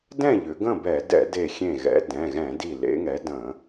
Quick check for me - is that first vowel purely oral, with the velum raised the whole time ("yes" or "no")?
no